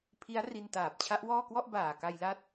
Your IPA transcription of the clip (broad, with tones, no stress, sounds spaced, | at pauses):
pʰ i˦˥ a̯ r i˧ n t aː˨˩ p̚ t͡ɕʰ a˦˥ ʔ w ɔː˥˩ k w ɔ˥˩ ʔ b aː˨˩ k a˧ j l a˦˥ t̚